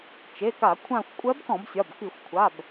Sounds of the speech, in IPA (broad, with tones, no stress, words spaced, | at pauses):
t͡ʃe˩˧˩ka˧˩˧ kʷʰã˦˨xʷ kʷʼɜ˧˥bkɔ̃˧˩˧bsʲɒ˩˧˩b ki˧˩˧xʷkʷʰa˩˧˩b